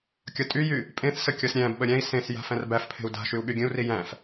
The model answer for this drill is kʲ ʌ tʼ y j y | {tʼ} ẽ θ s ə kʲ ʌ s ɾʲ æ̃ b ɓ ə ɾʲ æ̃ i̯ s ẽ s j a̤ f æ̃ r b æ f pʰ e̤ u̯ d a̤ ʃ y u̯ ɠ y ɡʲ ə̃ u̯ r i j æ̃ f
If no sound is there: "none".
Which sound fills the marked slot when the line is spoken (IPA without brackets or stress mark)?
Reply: pʼ